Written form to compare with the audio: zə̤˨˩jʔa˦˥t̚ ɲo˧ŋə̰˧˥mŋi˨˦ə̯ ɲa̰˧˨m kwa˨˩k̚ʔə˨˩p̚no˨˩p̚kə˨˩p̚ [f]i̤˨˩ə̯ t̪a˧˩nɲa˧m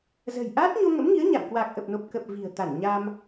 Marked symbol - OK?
no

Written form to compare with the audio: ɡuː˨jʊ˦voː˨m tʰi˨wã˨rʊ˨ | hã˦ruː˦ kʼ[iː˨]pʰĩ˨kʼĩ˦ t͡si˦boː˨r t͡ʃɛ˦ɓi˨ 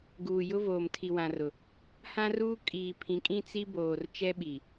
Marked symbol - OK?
yes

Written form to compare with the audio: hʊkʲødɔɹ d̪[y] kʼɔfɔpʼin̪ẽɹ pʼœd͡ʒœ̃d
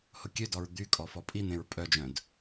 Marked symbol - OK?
yes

